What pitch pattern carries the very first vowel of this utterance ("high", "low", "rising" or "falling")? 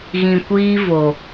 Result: low